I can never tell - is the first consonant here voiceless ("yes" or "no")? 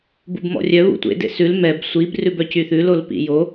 no